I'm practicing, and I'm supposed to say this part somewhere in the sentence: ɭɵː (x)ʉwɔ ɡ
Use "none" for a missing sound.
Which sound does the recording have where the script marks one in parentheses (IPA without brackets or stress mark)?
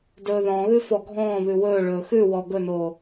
x